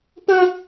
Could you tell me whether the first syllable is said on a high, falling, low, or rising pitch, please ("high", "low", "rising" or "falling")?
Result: high